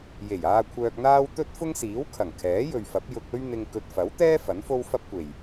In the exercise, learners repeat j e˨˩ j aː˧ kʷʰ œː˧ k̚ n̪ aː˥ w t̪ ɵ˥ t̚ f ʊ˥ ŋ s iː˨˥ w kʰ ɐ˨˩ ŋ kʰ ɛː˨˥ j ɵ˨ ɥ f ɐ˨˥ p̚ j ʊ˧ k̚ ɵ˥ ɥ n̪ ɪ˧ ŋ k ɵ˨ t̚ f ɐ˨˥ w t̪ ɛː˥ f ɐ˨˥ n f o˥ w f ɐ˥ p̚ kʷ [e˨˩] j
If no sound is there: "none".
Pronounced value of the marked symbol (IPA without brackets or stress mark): e˨˩